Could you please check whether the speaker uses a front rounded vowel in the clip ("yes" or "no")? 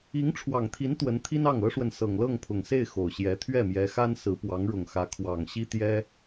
no